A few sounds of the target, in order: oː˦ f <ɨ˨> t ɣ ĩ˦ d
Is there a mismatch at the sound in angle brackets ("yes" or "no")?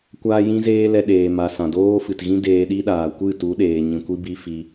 no